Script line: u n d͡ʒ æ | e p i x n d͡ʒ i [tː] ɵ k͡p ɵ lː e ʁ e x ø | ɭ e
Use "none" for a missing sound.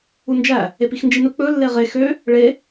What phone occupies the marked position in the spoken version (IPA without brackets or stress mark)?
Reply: n